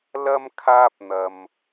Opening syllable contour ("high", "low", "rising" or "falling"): high